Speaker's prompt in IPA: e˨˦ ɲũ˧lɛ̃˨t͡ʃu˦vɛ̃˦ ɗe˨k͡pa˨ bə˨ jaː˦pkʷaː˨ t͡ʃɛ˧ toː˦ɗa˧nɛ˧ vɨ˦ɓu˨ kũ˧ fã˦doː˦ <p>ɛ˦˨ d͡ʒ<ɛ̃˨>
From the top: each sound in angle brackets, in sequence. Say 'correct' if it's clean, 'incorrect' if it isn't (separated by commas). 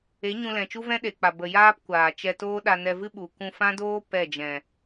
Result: correct, correct